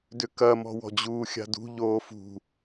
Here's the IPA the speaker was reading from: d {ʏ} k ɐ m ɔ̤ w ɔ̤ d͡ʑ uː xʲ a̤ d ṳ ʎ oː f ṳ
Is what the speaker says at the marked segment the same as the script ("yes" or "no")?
yes